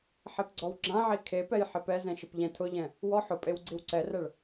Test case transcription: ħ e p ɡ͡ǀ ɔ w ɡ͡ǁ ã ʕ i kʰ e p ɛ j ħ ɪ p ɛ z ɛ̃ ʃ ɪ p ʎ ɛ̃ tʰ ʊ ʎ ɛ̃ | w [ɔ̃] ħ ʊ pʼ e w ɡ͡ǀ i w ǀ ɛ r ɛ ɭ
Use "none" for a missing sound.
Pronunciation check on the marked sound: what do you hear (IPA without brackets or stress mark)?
ɔ